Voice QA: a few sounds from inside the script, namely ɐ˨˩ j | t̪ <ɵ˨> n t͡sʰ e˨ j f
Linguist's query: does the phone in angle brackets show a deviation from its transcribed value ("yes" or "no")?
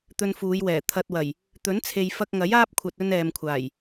yes